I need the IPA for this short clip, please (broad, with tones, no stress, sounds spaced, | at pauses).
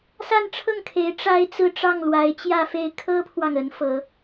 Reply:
s a˥˧ n ʈ͡ʂʰ ɤ˥˩ ŋ kʰ e˧˥ ɪ̯ ʈ͡ʂ a˥ ɪ̯ t͡s ɹ̩˥˧ ʈ͡ʂ ɑ˥˩ ŋ l w a˧˥ ɪ̯ t͡ɕ j ä˥˧ f e˥˩ ɪ̯ kʰ ɤ˥ pʰ w ɑ˨ ŋ ə˧˥ n f ɤ˧˥